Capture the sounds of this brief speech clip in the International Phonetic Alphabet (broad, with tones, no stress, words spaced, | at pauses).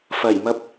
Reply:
fɐ˨˩jmɐ˧p̚